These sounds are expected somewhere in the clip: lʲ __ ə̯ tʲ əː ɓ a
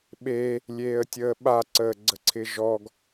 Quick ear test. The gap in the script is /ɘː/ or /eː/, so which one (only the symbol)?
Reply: eː